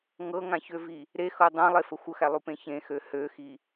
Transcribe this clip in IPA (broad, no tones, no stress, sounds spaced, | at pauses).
ŋ ɤ ŋ ã ç ø v i | ɾ e x ɤ dˤ ã lˠ e f ə xʷ ə x æ lˠ u p ẽ ç ẽ x ø h ø x i